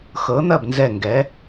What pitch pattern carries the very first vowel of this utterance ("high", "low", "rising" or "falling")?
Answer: rising